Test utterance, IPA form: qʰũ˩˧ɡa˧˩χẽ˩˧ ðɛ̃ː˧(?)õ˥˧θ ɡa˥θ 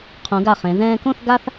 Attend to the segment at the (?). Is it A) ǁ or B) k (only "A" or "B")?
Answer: B